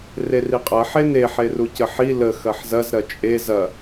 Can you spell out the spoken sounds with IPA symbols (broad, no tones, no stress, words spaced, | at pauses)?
reriqʼɐ ħene ħerucəħi lə xɐħzɐz ɾɐt͡ʃʼe zɐ